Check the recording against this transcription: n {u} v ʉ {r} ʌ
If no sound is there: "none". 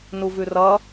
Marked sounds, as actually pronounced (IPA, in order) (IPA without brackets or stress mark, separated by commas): u, r